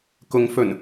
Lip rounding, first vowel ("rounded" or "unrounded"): rounded